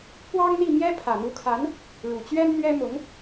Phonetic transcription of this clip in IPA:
pwɑ˥ŋn̪i˥˩mjɛ˥ pʰä˨˩n̪u˧˥kʰa˧˥n | ɻu˨˩t͡ɕɥɛ˥nn̪ɥɛ˥mʊ˧˥ŋ

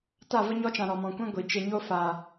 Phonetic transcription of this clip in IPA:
ta˦˨və˦ ɲɔ˧t͡ʃã˨ ɾɔ˨mɔ̃˨kʷɛ̃˦ ɡʷi˨ t͡ʃe˨ɲo˧ fa˨

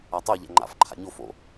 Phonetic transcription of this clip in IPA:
atˤoʎæ̰ ŋ͡ǃa̰f ǃʰa̰ɲo fo̰

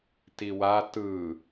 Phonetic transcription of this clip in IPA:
tiwa tɯː

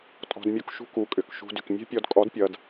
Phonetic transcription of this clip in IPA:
tʼɔ̤˧dmʲu˧k ʃṳ˦ku˨˦kʼʏ˨k ʃṳ˧dʏ˨k mʲɛ̤˦pʲɔ˧dkʼɔ˨˦dpʲʌ˨d

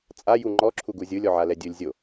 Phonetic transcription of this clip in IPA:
t͡sʼa juŋ͡ǃɔ ǁʰuɡuzʲɯlʲ ɔʕalɛdʲɯlʲ zʲo

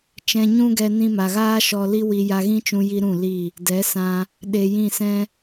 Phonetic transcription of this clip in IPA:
t͡ʃɛ̃˧ɲũ˦ɡɛ˧ nĩ˧ma˨ɣaː˦ʃɔ˧ li˦wi˧ ja˧ɣĩ˦t͡ʃũ˧ji˧ ɾũ˦˨li˦˨ | dɛ˨˦sã˧ | ɗe˧jĩ˦˨sɛ̃˦

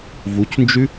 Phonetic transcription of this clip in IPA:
vucnd͡ʒʉ

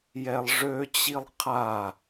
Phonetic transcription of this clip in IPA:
jɛlˠʐøt͡ɕilˠ qʰa

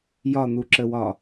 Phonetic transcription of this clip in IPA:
jɒn̪uǁəwɒ

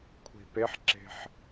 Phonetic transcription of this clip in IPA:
kʷʰi̤peħǁe̤ħ

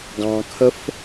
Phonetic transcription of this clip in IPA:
ɡɑ̃kʰəf

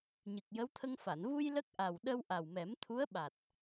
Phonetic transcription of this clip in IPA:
ɲɨ˨˩k̚jə˧˥wt̪ʰə˧ŋfa˨˩˨n vu˧j lə˦˥k̚ʔa˨˩w ɗə˧w ʔa˨˩wmɛ˨˩˦mt̪ʰu˧˥ə̯ɓa˨˩t̚

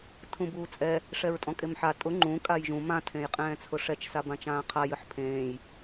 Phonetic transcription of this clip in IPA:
tʰũbuːt͡sʼɛ | ʂɛɹtʼɔ̃kʼemħa tʼʊ ŋ͡ǃũ kʼajʒũ mã tʰẽjqʼɛ̃ːt͡sʰʊʂɛt͡ʃ sabãt͡ʃãːqʰa jɨħpʰẽːj

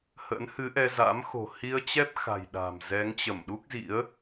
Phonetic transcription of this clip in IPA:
hə̰˧˥nhɨ˨˦ʔɛ˧za̰˧˥m xo̤˨˩hi˧ə̯t͡ɕɛ˦˥p̚ xa̤˨˩j ɗa̤˨˩m zɛ˨˦ŋt͡ɕə˧˩mɗu˦˥k̚zḭ˧˥ə̯

